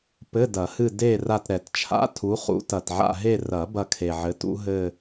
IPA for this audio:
p ɘ˧˥˧ d ɐ˨˩˦ h ɨ˦˨ d e˦˨ r a˦˨ t ɾ ɛ˨˩˦ t t͡ʃʰ a̰˧˥˧ tʰ u˨˥ χ ṵ˨˥ t ɐ˨˩ t ʕ a̰˦˨ ɦ e˦˨ r ɐ˨˩˦ b ɐ˦˨ kʰ e˨˩ ʕ ɘ˨˥ t ṵ˨˥ ɦ ɘ˦˨

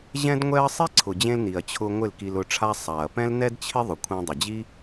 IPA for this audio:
ʑ ɛ̃˦ d ŋʷ ɛ˦ ɐ̯ sˤ i˦ ǀʰ ʊ˨ d͡ʑ ẽ˧ l n i˨ ɐ̯ t͡ɕʰ ʊ˧ ŋʷ ɪ˦˨ l k i˧ l ʊ˧ ʈ͡ʂʰ a˦ sˤ a˨ ɐ̯ p ɛ̃˦ l n ɛ˦ d t͡ɕʰ ɪ˦ ðˤ ʊ˨ kʷʰ ɛ̃˧ dˤ ɪ˨ d͡ʑ i˦

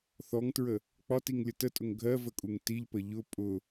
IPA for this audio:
θ ɔ ŋ t ɹ ə | k͡p ɒ t i ŋ lʲ ə t ə tʼ ʊ ŋ ɡʱ ɜ v ə kʼ u ŋ t i ʎ p ə ʎ ʊ pʼ ʊ

